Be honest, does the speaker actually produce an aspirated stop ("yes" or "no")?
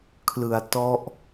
yes